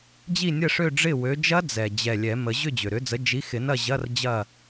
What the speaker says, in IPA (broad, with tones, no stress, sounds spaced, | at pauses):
d͡ʑ i˥˨ nʲ ə˥˨ ʂ ø˥˨ ɖ͡ʐ ɪ˥˨ w ø˨˥ d͡ʒ ɐ˦˥ d͡z ɛ˨˩ d͡ʑ ɛ˨˩ lʲ ɛ˨˩˦ m ə˨˩˦ ʑ ʏ˥˨ d͡ʑ ʏ˨˩ ɾ ʏ˨˥ d͡z ə˨˥ d͡ʒ i˨˥ x ɪ˨˩˦ n ɐ˥˨ ʑ ɐ˧˥˧ r d͡ʑ ɐ˥˨